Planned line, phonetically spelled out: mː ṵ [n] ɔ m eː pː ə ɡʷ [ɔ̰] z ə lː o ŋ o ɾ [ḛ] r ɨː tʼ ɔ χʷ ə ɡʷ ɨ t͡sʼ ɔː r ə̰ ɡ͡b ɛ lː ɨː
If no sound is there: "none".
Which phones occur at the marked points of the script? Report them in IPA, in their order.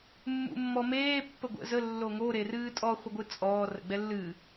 mː, ə̰, e

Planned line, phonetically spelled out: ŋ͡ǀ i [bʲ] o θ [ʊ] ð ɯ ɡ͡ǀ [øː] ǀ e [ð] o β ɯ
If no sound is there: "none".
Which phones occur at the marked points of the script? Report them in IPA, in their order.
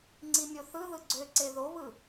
mʲ, ɯ, ø, ð

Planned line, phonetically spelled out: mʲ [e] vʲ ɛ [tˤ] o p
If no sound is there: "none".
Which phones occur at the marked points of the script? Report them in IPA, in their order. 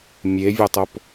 e, tˤ

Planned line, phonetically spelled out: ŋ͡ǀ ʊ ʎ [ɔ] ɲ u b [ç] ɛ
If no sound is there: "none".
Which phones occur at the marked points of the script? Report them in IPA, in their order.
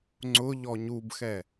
ɔ, x

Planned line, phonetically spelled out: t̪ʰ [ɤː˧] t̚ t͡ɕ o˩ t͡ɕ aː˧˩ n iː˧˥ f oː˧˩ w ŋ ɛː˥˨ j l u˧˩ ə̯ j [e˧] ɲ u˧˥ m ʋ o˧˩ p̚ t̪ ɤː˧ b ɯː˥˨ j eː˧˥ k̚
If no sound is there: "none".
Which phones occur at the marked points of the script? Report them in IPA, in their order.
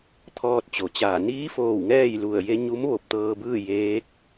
ɔː˧, e˧

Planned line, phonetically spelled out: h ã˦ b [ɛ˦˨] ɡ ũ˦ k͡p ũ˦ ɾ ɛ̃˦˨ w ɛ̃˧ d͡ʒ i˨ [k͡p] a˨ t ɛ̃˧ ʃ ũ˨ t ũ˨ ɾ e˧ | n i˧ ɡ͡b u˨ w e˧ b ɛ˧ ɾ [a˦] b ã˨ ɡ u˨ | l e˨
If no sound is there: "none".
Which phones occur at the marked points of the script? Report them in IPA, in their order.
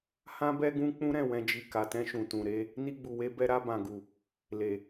ɛ˦, k, a˧

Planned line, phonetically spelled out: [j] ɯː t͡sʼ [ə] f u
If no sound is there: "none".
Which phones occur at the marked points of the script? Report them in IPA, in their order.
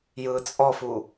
j, ɔ

